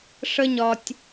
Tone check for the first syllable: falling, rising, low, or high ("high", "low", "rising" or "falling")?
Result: high